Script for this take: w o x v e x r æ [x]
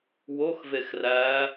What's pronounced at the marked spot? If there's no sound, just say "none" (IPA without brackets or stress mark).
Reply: none